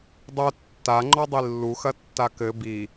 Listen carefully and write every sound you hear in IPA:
dˤ o tː a ŋ͡ǃ ɔ dˤ i lː u x ɐ tː a k ɘ b i

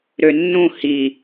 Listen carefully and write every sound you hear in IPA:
ɾ ø nː ũ h i

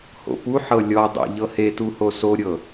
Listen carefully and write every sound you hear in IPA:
h o̰ p u ħ ɤ lʲ ɔ dˤ æ̰ ʎ ɤ h e t u h o s o ɾʲ ɤ

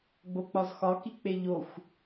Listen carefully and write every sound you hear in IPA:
ɡ͡b o k͡p ɒ z x ɒ k i k͡p e ʎ o xʷ

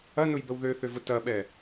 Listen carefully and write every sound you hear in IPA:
ɐ n ʊ j b ə w ð ø θ ø v ʊ t ɐ ɓ ɛ

